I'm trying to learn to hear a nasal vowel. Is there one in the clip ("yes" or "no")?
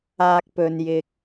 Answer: no